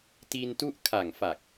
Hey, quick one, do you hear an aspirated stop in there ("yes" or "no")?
yes